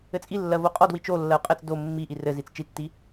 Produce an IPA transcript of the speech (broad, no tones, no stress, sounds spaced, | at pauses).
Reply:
ɘ t͡sʼ i lː ɜ v o qʼ ɔ d w i t͡ʃ o lː ɜ u̯ qʼ ɘ t͡s d o mː i ʔ i r ɘ z i t͡s t͡ʃ i tː i